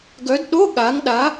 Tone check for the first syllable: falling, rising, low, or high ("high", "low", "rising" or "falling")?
rising